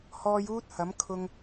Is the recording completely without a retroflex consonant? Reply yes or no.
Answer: yes